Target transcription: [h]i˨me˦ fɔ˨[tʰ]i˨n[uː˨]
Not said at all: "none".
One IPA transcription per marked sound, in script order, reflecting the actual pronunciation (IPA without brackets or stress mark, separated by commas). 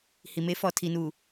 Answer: h, tʰ, uː˨